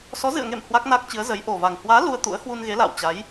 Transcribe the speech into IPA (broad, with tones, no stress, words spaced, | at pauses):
sɔ˨˦zɨ̰˧˨ə̯ŋḛ˧˨m hwa˦˥k̚na˦˥k̚t͡ɕɨ˨˦ə̯ zə˨˦jʔo˨˩va˨˩ŋ hwaː˨˦ lu˧ə̯t̪ṵ˧˥ə̯ hwu˧nɣe˨˦ la̰ː˧˨wt͡ɕa˨˦j